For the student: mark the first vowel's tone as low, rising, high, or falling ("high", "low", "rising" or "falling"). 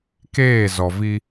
falling